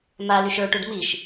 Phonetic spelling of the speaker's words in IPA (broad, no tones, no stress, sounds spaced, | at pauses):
m a l y ʃ ə˞ ʈ u ɖ m i ʃ